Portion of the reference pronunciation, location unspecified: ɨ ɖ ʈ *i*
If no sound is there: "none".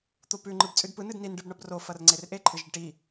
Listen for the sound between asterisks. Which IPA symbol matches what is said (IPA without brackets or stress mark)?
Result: i